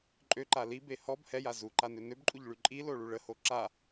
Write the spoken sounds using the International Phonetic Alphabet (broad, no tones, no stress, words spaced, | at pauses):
ǃʼøǃa libe hɔb hɛja zuǃanø nøbǃʼuʎɭy ǃʼiloɭu ɭəho ǁa